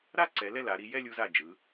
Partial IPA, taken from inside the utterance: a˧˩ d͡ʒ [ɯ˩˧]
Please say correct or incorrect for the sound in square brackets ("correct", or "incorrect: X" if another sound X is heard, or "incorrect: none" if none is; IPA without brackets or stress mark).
correct